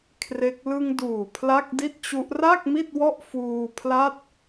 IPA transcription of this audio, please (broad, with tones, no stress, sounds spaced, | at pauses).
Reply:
kʰ r e˦˥ k̚ l ɯ˧ ŋ d uː˨˩ pʰ l a˥˩ k̚ d i˥˩ t̚ t͡ɕ u˦˥ ʔ r a˥˩ k̚ m i˥˩ t̚ w ɔ˦˥ ʔ f uː˧ pʰ l a˥˩ t̚